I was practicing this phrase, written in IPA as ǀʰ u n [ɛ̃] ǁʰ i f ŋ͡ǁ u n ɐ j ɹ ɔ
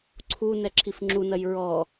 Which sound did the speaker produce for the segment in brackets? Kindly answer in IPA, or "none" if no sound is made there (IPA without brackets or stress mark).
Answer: ɛ